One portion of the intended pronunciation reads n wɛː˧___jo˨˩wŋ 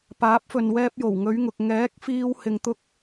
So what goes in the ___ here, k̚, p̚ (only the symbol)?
p̚